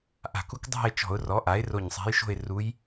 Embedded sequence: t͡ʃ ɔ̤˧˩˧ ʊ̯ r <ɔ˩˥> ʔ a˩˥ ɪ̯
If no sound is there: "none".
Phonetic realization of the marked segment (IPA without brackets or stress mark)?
ɔ˩˥